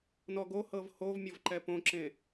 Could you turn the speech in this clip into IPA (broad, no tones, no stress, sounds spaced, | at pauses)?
n ɔ ɡ o h ɤ v h o v mʲ ɔ v ǃ ɛ p õ ǁ ẽ